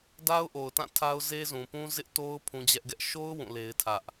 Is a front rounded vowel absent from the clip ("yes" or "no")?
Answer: yes